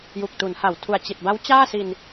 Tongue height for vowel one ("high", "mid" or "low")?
high